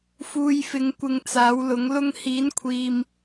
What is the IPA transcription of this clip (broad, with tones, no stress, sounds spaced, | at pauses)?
f uː˧ j f ɪ˨˥ ŋ kʷ ɪ˧ ŋ t͡s aː˨˥ w l ʊ˨˥ ŋ l ʊ˧ ŋ h iː˨˥ n kʷʰ iː˨ m